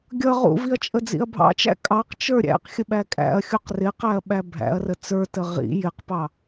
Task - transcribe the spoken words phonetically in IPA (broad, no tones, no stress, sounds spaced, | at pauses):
ɡʲ ʌ ʁ ṵ v i ɐ̯ t͡ʃʼ ə d͡z ḭ ɐ̯ bʱ ɑ̰ t͡ʃ æ̰ kʼ ɑ q t͡ʃ ə˞ ɾʲ æ̰ q xʲ ə ɓ æ kʼ æ̰ ɐ̯ xʲ u q r ɪ q æ ɐ̯ ɓ æ bʱ æ̰ ɐ̯ r ə t͡s ə˞ t ə ʁ ḭ j ɪ q p ɑ